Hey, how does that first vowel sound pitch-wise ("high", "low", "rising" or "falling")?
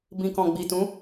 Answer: low